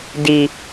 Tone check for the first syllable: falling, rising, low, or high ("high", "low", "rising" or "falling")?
low